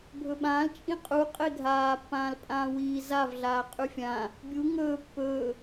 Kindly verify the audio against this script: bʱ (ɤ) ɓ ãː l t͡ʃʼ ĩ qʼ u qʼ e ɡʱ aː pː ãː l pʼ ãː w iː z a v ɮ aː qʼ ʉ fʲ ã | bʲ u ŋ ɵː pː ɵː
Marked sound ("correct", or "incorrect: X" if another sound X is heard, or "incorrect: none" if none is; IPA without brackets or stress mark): incorrect: ɵ